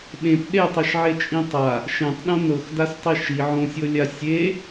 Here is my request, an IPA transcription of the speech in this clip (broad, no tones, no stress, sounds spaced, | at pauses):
ɓ ẽ p ɗ e tˤ i ʃ ʕ e t͡ʃʼ ĩ tˤ a | ʃ ẽ tˤ ɗ õ n ɤ x d a s tˤ i ʃ i ʕ õ sʲ ɤ lʲ a sʲ e